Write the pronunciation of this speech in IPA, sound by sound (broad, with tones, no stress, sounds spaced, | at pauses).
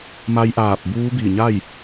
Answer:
m a˧ j ʔ aː˧˩ p̚ b uː˧˥ b i˧˩ ɲ a˥˨ j